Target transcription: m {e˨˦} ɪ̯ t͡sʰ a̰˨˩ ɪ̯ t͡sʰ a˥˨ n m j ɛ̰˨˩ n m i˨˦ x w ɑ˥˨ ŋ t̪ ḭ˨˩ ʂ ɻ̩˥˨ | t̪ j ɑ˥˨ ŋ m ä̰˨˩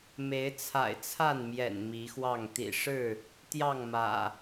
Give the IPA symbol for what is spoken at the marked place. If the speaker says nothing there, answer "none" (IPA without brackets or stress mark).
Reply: e˨˦